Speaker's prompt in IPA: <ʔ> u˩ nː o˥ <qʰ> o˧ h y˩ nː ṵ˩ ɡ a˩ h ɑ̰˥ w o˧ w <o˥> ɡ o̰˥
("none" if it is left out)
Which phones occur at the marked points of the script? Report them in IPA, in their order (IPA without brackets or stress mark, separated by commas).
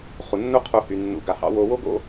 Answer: χ, qʰ, o˥